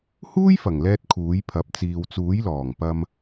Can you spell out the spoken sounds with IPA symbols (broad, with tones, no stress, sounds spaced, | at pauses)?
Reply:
h uː˥ j f ɐ˨˩ ŋ l ɛː˧ t̚ kʰ uː˨˥ j pʰ ɐ˨˥ p̚ t͡s iː˨ w t͡s uː˨˥ j l ɔː˨˩ ŋ p ɐ˧ m